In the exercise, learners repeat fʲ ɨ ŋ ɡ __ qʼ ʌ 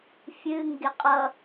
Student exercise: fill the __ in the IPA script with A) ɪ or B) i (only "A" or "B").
A